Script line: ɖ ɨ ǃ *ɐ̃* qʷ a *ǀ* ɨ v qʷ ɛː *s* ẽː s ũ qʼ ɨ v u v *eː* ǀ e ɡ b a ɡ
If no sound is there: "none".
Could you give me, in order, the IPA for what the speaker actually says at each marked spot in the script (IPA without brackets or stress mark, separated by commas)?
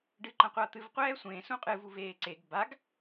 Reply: ɐ̃, t̪, sʷ, eː